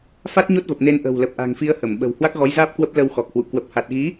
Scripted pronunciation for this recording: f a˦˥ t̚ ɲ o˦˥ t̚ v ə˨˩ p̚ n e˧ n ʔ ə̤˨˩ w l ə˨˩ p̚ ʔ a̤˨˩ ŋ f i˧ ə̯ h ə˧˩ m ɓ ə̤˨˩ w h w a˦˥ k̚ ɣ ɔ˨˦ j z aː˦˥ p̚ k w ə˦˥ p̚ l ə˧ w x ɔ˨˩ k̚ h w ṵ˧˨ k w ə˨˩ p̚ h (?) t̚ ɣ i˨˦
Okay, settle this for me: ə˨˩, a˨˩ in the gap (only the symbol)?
a˨˩